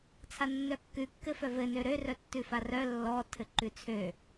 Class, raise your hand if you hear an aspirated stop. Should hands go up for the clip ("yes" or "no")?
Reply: yes